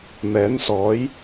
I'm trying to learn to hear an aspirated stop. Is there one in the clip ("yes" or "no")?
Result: no